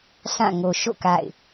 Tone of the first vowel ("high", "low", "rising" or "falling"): falling